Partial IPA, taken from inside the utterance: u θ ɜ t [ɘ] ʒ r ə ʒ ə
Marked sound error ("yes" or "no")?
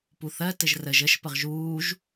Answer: no